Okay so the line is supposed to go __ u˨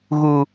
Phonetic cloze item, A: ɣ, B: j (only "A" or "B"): A